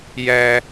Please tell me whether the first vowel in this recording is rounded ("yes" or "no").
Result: no